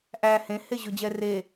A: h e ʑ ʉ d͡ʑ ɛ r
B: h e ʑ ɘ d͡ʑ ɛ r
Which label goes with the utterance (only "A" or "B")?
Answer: A